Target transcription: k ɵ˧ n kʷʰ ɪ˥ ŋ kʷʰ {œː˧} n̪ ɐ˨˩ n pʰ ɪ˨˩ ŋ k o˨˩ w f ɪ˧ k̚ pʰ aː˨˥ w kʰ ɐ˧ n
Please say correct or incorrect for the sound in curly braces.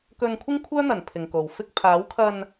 incorrect